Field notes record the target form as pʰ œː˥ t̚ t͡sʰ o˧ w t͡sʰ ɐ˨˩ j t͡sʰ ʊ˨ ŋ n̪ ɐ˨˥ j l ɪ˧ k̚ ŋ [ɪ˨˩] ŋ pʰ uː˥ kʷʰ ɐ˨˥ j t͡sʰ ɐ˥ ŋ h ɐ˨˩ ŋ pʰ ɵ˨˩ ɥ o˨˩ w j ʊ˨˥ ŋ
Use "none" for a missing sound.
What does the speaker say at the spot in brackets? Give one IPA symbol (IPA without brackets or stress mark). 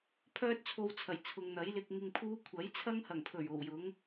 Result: ɪ˧